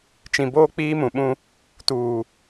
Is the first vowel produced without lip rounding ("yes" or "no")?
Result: yes